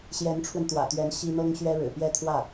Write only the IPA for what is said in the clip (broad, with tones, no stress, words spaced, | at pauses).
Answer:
ɕjɛ˧˥nʈ͡ʂʰwə˧nt̪wä̰˨˩t̪ɥɛ˧˥n ɕi˥ n̪ɤ˥ŋɕɥɛ˥ ɻɻ̩˨˩ pjɛ˥˧t̪ʰwä˥˩